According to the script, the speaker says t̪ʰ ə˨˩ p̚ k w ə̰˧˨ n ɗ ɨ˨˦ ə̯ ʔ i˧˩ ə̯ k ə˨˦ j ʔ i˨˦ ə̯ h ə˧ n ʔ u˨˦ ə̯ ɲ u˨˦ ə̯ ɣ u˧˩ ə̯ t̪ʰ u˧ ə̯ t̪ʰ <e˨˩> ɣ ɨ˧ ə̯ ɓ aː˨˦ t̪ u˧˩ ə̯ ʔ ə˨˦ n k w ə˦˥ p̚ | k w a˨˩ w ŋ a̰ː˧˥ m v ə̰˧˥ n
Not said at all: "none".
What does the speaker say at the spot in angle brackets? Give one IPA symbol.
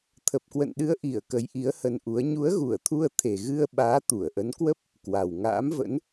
e˨˩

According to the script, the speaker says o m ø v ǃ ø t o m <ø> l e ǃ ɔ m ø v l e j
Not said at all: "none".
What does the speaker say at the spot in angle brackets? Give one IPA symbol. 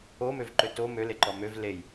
ø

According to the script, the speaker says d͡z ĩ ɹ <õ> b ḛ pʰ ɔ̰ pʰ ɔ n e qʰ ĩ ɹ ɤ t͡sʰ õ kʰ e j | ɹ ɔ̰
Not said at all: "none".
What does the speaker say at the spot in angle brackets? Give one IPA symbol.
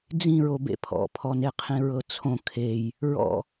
o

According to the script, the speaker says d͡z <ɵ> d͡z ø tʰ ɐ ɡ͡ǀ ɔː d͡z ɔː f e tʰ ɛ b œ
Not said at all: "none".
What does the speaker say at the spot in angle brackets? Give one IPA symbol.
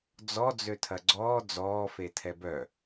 ɔ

